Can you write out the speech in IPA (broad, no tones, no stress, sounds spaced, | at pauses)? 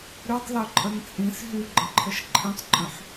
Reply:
ɾ y tˤ l œ ǃʼ ə n t͡sʼ ĩ s ɦ y ɡ͡ǃ ə̃ ǃʰ ə ʃ ǃʰ ĩ tˤ ǃʼ œ̃ ħ